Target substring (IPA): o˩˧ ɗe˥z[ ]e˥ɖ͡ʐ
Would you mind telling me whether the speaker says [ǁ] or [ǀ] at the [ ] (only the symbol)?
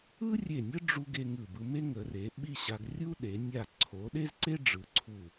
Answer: ǀ